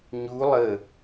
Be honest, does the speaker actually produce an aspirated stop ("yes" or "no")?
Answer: no